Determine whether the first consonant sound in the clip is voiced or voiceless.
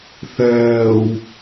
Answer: voiceless